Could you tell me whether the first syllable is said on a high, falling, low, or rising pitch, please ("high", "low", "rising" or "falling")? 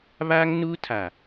high